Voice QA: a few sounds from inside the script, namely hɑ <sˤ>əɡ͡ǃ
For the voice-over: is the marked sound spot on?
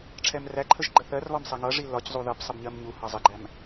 no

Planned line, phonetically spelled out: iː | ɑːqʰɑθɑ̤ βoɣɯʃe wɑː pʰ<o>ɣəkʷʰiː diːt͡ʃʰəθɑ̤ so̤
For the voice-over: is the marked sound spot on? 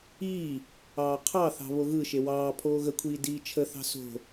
no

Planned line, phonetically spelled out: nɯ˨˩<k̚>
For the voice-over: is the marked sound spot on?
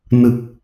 yes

